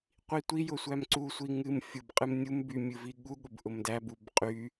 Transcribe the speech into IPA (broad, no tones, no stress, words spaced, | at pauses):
qʷitʷijʊ sʷæmǀusʷi ŋɨm fʲʊb qʼɨmnʲumby mʲɨviɠuɠʊb ʔʊmdæbub qʼy